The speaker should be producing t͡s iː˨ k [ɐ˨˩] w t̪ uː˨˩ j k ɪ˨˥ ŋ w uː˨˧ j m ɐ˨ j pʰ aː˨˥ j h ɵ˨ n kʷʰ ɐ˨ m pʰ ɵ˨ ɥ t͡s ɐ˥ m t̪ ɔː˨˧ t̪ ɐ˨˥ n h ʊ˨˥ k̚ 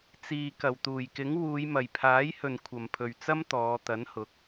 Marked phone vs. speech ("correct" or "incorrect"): correct